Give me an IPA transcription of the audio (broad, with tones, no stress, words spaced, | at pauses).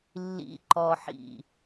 lːḭ˨ǃɔ˨ħḭ˨